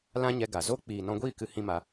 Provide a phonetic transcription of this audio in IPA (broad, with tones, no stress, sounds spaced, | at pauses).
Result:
l ã˦ ɲ ɛ˧ ɡ a˨ z o˦ k͡p iː˨ n ɔ̃˧ ɡʷ iː˦˨ k ɨ˧ h ĩ˦ m a˧